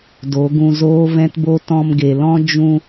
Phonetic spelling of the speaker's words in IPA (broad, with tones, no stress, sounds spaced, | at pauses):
d o˨˦ ɡ ũ˧ z oː˦ v ɛ̃˦ t b o˦ t ɔ̃˧ m ɡ e˨ l ɔ̃˦ d͡ʒ ũ˧